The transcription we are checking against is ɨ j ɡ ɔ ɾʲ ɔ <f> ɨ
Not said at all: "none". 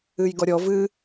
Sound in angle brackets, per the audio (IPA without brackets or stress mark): v